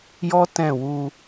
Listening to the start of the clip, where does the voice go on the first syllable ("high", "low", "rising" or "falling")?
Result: high